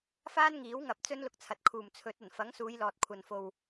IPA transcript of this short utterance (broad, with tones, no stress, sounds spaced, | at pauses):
f aː˥ n ŋ iː˨˥ w ŋ ɐ˨ p̚ t͡s ɵ˥ n l ʊ˧ k̚ t͡sʰ ɐ˨ t̚ kʰ uː˨˩ m t͡sʰ ɵ˨˥ t̚ ɐ˨˩ n f ɐ˨˥ ŋ s uː˨˧ j l ɔː˨ t̚ kʷʰ ɐ˨ n f o˨ w